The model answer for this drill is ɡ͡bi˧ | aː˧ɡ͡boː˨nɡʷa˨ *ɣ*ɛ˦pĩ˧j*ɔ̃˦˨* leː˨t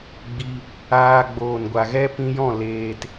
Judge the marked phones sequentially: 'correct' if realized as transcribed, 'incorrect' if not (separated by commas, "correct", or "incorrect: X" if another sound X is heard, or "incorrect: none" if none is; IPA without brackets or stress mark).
correct, correct